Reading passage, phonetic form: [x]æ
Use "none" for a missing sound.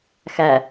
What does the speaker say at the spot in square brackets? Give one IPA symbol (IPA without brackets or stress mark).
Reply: x